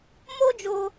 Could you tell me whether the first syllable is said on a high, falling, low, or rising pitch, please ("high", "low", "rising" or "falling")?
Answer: high